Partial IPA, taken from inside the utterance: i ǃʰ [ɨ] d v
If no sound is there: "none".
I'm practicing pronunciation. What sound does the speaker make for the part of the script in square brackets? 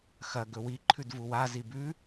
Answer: ʉ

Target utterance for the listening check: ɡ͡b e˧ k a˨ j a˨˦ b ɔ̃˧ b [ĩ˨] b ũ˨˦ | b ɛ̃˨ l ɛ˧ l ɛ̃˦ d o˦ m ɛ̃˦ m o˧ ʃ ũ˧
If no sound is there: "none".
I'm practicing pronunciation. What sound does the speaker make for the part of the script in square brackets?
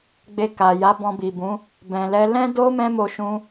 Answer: i˨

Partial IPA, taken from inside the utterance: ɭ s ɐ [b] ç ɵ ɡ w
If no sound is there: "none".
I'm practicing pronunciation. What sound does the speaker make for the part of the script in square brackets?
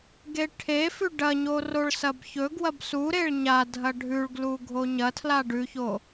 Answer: b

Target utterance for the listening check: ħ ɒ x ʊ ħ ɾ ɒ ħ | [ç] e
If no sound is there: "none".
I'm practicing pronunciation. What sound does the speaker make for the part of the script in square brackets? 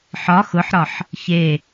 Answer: ç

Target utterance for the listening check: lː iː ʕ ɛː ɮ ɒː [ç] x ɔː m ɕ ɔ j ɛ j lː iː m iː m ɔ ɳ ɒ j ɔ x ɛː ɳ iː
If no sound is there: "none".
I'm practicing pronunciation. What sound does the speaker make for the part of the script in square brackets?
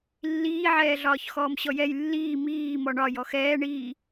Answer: ç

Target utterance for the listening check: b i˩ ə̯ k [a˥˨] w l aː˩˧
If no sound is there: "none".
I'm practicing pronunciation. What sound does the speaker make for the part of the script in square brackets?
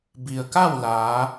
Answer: a˥˨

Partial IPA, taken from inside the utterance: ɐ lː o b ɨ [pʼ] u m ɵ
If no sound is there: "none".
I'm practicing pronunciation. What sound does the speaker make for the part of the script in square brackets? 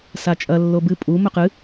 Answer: pʼ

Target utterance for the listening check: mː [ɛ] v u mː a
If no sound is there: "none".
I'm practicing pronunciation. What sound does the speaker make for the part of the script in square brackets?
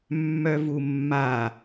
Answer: œ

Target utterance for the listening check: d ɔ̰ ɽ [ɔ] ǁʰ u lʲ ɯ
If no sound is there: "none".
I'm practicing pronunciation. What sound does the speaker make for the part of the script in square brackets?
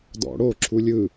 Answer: o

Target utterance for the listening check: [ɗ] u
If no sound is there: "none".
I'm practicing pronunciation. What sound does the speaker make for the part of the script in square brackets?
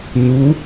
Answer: n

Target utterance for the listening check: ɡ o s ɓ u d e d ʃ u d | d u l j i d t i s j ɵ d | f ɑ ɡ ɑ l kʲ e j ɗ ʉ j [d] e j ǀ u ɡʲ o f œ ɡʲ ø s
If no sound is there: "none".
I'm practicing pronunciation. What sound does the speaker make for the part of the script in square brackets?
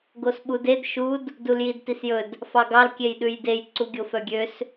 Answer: d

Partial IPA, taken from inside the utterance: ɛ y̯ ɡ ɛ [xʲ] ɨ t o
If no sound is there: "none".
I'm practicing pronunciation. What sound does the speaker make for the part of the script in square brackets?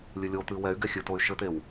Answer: xʲ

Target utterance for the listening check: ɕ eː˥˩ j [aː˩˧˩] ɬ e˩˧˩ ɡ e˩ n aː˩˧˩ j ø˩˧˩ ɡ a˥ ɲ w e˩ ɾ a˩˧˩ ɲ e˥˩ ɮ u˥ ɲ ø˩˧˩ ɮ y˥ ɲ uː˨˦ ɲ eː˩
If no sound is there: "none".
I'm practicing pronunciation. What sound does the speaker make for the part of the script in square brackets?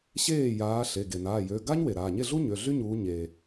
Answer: aː˨˦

